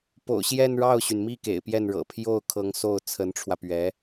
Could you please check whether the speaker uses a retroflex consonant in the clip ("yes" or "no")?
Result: yes